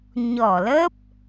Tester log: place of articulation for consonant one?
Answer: palatal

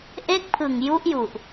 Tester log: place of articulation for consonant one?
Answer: glottal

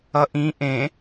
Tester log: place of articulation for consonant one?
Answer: glottal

